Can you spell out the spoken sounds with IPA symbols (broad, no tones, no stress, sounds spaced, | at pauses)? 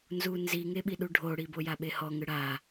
n z u n z i ŋ e ɓ i ɗ u ɖʱ o ɽ i b o j a ɓ e h ɔ ŋ ɯ ɽ a